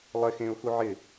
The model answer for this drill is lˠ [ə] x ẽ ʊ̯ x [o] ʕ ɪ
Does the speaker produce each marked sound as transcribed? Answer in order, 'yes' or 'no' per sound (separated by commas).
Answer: no, no